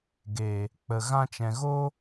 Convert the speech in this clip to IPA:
ɡe˨ | k͡pə˨ ɣã˧t͡ʃɛ̃˨ɣo˦

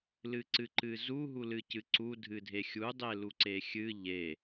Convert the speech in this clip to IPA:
lɨǀɨǃɨzu ɦulɨcɨǀu dʱɨdʱexʲu dˤeluǀexʲɨ ʎe

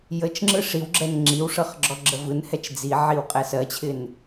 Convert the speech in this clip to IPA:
jət͡ʃŋ͡ǁɯ ʂiwɡ͡ǁɛn ŋ͡ǁiwʂɤχ ɡ͡ǁɔɡ͡ǁəvɯnhɛt͡ʃ d͡ziʕiw qʼɛsɜt͡ɕʰɪn

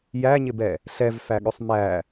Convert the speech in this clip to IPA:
jæɲɪbɛ | ɬɛvfæɠʊsˤ mæ

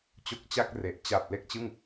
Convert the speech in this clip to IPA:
t͡ɕo˦˥k̚t͡ɕa˥˩k̚re˨˩ʔ t͡ɕa˨˩p̚ le˥˩k̚t͡ɕɯ˥˩ŋ

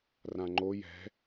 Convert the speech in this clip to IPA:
rãŋ͡ǃo jɛ̤

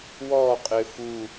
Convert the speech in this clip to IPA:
wɔː qʼɪːfu

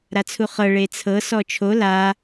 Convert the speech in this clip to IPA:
ɾat͡sʰuχɤ ɭet͡sʰɤ sɔt͡ʃʰo la

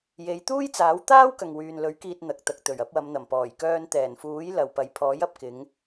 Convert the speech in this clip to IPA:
je˨˧j t̪uː˥jt͡saː˨˥w t̪aː˥w kɐ˨ŋwyː˨nlɵ˨˥ɥ kiː˧t̚n̪ɐ˨k̚t̪ɐ˨k̚ t̪ɵ˨˩ɥɐ˨˥p̚wɐ˨˧mn̪ɐ˨˩m pɔː˨˩jkœː˧n t̪ɛː˨˩nfuː˨˥j lɐ˨wpɐ˨˧j pʰɔː˨˥jɐ˨p̚kɪ˨˧ŋ

